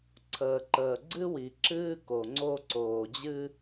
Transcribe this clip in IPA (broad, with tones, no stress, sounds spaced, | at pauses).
ǀʰ əː˨ ǃ əː˨ ɡ͡ǀ ɨ˦ w i˨ ǁ ɨː˦ k o˨ ŋ͡ǀ o˦ ǀ oː˨ d͡ʑ ɨ˦